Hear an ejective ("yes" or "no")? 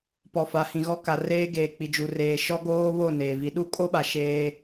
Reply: yes